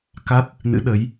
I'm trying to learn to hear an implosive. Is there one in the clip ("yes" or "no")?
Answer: yes